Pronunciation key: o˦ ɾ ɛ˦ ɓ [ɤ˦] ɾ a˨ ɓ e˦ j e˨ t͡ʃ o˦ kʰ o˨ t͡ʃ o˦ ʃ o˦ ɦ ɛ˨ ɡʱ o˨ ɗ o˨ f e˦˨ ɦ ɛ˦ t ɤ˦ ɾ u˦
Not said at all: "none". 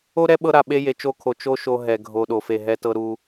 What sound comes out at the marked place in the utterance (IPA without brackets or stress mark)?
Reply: ɤ˦